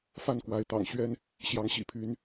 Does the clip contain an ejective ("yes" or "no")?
no